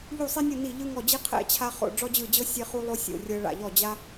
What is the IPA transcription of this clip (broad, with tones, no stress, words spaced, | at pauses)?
ʎu˥˧sˤi˥nʲɯ˥˧ ni˥˧ʎɯ˥ŋɔ˥˧d͡ʑi˥ qʰɛ̰˥˧t͡ɕʰa˥χo̰˥˧ ɖ͡ʐɔ˥d͡ʑɯ˥˧d͡ʑɤ˥ sʲe˥χu˥lˠo˥ sʲo̰˥˧rʲɤ˥ ɭa̰˥˧ʎɔ˥˧ d͡ʑa˥